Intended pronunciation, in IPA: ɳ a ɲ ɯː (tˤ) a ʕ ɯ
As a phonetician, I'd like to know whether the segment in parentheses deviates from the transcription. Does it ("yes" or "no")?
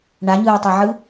no